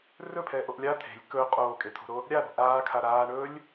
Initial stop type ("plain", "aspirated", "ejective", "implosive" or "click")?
aspirated